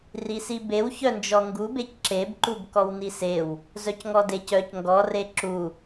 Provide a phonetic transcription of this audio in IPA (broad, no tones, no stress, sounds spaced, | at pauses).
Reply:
r i s i b e w ç œ n d͡ʒ ɔ ŋ ɡ u b e c ǁ e b ǃ u b k ɔ w n i s e w | z œ c ŋ ɔ d e c œ c ŋ ɡ ɔ r e ǁ u